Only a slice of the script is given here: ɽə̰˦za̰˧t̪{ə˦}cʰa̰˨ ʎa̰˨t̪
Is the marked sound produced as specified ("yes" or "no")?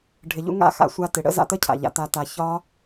yes